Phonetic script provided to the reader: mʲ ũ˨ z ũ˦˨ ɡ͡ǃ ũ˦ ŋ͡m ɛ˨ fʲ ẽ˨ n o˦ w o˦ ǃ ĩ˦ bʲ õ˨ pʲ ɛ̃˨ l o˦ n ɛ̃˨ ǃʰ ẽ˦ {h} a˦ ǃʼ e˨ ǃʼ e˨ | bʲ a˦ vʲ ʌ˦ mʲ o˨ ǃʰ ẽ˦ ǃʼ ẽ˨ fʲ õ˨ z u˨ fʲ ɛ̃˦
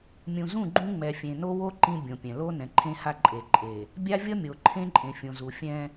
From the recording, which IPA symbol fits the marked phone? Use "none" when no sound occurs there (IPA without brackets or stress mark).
h